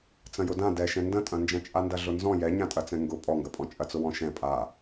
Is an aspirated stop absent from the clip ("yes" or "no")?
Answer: yes